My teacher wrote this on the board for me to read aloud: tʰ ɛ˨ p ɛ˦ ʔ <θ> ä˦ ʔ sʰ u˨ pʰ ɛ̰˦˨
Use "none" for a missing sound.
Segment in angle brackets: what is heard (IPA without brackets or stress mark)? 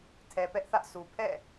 θ